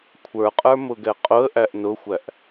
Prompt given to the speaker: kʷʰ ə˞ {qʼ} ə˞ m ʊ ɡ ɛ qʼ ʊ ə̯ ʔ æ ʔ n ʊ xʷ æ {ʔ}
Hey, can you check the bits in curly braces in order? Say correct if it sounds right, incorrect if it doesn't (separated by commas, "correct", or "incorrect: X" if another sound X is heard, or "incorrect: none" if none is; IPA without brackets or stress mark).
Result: correct, correct